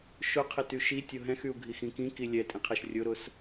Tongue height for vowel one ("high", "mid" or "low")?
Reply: high